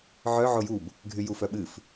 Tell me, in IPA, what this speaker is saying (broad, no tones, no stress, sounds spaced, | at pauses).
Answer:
ʕ œ ʕ o j u b | ɡʱ y j u f œ ɓ ɨ f